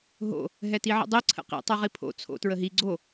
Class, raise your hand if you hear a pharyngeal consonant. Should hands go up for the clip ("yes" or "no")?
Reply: yes